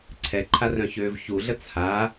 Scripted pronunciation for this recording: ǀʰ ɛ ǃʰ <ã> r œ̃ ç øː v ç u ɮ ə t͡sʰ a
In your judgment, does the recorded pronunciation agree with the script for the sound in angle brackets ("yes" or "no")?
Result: no